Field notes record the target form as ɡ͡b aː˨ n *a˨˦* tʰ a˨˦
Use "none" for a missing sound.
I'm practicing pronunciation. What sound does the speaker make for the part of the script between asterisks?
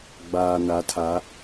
a˨˦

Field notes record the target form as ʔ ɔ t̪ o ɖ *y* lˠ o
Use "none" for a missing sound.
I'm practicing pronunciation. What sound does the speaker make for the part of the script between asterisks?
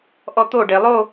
e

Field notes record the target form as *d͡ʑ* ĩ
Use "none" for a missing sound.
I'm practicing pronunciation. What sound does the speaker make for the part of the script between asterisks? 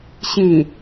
ɕ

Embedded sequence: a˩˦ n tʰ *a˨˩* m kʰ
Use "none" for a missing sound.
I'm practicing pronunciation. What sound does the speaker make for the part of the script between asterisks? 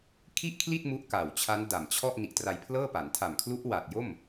a˨˩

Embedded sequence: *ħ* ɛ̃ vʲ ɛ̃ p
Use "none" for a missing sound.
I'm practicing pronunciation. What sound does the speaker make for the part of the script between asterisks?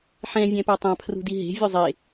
ħ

